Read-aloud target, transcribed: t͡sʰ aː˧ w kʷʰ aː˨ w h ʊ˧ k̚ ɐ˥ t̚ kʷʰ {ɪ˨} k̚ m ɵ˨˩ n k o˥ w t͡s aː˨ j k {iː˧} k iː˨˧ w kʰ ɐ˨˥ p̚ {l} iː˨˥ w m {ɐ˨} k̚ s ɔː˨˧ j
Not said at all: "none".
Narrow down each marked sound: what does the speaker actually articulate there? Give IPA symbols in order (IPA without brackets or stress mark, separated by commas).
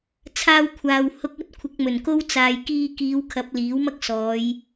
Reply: ɪ˨˥, iː˧, l, ɐ˥